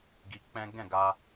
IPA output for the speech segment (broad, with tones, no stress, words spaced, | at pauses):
ɡi˧k͡pɛ̃˦ ɡɛ̃˦˨ɡa˧